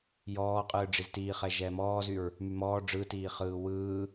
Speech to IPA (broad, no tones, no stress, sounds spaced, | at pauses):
j ɔː qʼ ɯː ɖ͡ʐ i z t iː χ ɛ ʒ ɛː m ɔː z y ɹ | m y m ɔː ɖ͡ʐ ɯ t iː χ ɯː w ɯː